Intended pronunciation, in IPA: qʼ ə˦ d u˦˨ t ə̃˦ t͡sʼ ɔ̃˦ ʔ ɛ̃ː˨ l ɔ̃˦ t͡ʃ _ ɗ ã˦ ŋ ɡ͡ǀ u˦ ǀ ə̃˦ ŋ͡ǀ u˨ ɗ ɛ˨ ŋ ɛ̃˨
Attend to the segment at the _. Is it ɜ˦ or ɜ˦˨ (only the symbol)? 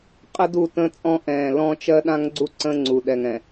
ɜ˦